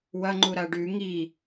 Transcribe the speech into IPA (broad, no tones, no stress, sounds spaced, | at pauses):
w ɐ ŋ͡ǃ u ɾ a ɖ ʉ ŋ i